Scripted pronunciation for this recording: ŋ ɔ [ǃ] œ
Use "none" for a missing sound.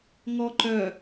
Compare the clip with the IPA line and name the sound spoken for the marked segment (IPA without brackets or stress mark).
ǃ